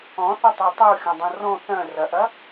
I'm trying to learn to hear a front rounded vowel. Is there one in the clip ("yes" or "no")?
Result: yes